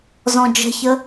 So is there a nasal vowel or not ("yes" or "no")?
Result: yes